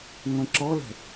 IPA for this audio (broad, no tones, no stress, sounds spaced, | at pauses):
ŋʷ ẽ ǁ ɔ l ɛ̤